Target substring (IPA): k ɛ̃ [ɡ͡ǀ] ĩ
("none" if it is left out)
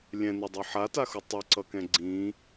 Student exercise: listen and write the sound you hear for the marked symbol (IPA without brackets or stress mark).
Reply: ɡ͡ǀ